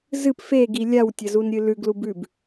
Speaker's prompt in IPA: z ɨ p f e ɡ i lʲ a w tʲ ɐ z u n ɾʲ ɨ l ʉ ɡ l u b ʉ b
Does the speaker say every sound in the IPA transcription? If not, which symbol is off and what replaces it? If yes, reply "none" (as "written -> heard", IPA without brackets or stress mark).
none